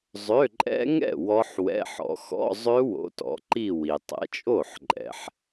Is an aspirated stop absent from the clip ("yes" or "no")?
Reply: yes